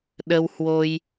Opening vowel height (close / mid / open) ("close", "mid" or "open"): mid